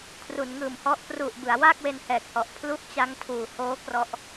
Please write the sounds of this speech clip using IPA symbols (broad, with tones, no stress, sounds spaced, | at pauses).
kʰ r u˩˦ n ŋ ɯː˨˩ m h ɔ˦˥ ʔ p r u˨˩ ʔ b ɯ˩˦ a̯ w a˥˩ k̚ w e˧ n h ɛː˨˩ k̚ h ɔ˨˩ ʔ pʰ l u˥˩ ʔ t͡ɕ a˦˥ ŋ tʰ uː˨˩ h oː˦˥ k r ɔ˦˥ ʔ